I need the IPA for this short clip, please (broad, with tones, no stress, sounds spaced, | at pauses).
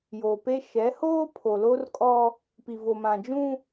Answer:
j o˨ p e˦ ʃ ɛ˨˦ h oː˦ pʰ o˨ l o˦ r kʼ ɔ˦ | p i˨ v o˨ m ã˨ d͡ʒ ũ˦